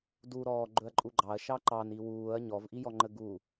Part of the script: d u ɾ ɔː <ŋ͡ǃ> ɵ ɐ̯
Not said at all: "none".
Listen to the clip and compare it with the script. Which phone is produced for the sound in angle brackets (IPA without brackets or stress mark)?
ɡ͡ǃ